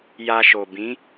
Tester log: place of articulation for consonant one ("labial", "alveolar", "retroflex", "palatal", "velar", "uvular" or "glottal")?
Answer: palatal